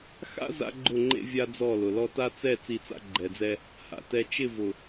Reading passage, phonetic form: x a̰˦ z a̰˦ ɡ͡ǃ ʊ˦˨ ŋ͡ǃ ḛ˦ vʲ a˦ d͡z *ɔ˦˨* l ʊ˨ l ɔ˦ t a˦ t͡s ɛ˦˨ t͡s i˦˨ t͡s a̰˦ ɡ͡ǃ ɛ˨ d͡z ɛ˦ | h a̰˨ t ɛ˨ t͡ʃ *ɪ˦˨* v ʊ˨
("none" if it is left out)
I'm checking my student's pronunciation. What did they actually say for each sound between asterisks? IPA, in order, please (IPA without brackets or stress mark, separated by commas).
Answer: ɔ˦˨, ɪ˦˨